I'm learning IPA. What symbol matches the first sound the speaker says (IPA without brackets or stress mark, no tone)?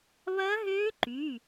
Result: β